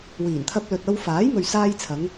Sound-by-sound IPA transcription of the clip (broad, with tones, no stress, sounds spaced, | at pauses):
w iː˨˩ n t̪ʰ ɐ˧ p̚ l ɵ˨ t̚ ɐ˧ w f aː˨˥ j m ɵ˨ ɥ s aː˧ j t͡sʰ ɐ˨˧ ŋ